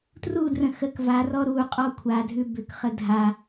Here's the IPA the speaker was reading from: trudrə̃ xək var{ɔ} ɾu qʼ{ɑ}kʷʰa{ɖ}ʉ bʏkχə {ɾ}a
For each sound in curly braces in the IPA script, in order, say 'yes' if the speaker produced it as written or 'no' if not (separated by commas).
yes, no, no, no